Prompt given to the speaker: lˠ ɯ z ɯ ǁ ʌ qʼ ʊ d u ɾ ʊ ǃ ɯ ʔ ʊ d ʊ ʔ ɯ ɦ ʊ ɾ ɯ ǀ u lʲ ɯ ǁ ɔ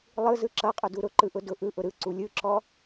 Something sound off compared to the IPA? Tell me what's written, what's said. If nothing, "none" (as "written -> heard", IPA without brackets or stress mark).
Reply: ɦ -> ʔ